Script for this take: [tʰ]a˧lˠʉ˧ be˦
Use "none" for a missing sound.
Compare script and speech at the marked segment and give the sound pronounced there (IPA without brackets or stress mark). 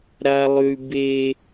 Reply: ɾ